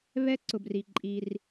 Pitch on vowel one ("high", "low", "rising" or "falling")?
high